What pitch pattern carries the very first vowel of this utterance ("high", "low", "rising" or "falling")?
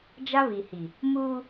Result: high